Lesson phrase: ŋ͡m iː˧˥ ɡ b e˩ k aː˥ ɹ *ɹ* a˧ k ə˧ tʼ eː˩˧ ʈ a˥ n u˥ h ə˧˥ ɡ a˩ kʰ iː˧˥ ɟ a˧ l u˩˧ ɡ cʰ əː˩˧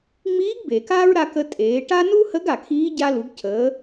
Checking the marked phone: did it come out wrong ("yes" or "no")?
yes